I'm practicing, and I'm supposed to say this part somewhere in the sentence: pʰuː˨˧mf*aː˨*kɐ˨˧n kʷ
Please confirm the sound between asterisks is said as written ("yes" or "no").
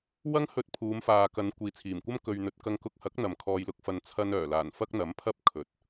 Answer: yes